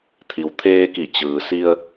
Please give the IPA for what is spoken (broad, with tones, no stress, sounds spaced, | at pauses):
t̪ʰ i˩ w t̪ʰ eː˧ k i˧˩ t͡ɕ ɯː˩ s i˧ ə̯